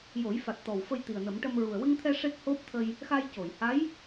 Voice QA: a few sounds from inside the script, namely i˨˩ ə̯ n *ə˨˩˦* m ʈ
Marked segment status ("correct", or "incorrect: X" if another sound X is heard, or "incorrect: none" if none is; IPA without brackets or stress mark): correct